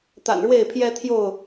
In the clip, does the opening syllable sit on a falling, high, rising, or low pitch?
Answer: low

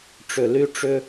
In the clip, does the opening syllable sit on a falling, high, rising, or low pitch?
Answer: low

